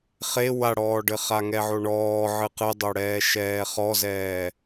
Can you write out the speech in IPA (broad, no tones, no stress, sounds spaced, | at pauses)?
χ e w a ɽ ɔː ɖ ɘ χ a ŋ ɛ ʕ o ɳ ɔː ʕ ɨ q ɨ dˤ o ɽ ɛː ʃ ɛː χ ɔ z ɛː